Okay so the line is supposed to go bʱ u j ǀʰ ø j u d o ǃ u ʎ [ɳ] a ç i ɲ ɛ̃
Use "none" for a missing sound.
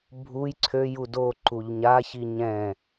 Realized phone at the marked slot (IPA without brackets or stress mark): ɲ